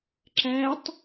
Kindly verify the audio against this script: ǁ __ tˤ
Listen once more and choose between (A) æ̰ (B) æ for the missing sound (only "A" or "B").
B